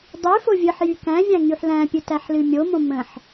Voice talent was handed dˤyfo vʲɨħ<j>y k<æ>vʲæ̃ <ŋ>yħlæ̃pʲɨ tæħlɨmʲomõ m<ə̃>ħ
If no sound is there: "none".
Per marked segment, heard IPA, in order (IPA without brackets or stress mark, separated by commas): j, æ̃, ŋ, ə̃